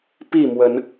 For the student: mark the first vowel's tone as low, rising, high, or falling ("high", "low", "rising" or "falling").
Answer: falling